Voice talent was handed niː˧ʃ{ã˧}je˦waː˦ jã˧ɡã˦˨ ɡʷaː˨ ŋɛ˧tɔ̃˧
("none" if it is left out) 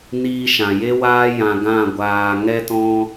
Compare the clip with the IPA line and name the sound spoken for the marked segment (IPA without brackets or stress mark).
ã˨